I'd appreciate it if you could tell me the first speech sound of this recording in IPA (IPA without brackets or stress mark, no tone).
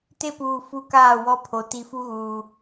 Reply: t